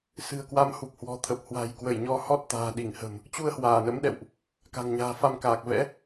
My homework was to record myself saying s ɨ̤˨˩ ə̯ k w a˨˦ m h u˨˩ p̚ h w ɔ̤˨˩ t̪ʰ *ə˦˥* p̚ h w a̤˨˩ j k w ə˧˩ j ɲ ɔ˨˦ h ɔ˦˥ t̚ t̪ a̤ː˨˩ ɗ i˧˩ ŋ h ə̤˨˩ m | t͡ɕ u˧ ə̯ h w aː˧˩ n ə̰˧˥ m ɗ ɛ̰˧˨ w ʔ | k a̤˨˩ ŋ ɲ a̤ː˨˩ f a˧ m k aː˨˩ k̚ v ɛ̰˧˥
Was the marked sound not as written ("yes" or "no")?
yes